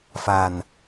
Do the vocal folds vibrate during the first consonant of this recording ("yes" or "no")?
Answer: no